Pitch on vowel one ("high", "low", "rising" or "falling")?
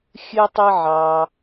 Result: high